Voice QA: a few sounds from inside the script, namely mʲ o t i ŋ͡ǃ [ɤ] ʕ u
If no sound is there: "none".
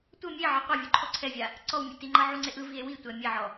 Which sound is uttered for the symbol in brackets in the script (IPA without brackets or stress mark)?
ɤ